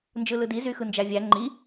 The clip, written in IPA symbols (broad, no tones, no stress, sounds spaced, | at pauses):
n d͡ʒ ɯ l ɯ d i z y x ɯ n d͡ʒ æ vʲ æ ŋ͡ǃ i